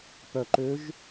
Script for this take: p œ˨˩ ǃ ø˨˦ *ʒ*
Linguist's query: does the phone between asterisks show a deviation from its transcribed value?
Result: no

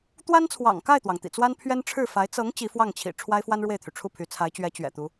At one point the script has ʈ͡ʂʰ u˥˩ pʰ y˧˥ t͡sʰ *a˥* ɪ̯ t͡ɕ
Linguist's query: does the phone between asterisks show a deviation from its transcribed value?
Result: yes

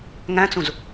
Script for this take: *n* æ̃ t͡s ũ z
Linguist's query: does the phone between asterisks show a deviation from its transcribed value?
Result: yes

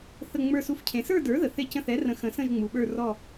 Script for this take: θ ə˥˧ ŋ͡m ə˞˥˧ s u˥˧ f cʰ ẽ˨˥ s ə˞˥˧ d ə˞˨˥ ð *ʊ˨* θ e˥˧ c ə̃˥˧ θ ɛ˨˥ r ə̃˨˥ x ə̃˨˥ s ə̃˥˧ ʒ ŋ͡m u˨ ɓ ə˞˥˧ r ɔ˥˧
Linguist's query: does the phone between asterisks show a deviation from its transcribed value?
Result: yes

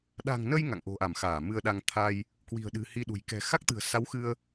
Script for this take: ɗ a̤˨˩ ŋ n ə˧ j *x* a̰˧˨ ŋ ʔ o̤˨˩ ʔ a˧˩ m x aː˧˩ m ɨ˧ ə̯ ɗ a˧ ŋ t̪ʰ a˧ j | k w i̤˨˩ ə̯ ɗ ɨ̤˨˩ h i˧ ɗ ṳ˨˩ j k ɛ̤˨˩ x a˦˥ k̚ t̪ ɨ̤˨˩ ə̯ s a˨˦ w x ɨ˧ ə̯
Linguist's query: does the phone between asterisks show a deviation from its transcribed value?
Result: yes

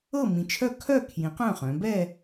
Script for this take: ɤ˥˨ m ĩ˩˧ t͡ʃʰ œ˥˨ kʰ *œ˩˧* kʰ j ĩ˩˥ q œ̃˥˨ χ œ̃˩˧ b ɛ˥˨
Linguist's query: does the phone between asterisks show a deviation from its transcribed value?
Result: yes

